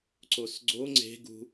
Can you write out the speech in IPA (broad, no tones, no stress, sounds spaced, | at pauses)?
ǀ o s ɡ͡ǀ o ŋ͡ǀ e̤ ɡ ṳ